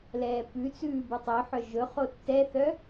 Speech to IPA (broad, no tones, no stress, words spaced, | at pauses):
lɛːpʉt͡sʉː bʉtˤœħœ ʒɵ χotːɛθœ